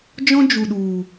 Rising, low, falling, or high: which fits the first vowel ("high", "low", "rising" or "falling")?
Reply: high